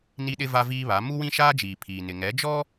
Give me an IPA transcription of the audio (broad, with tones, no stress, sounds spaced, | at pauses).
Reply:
n i˦ ɗ ɪ˦ v a˦ v iː˦ β a˨˦ m u˦ w ĩ˦ ʃ aː˦ d͡ʒ iː˨ pʰ iː˨ n ɪ˨ ŋ ɛ˨˦ d͡ʒ ɔ˦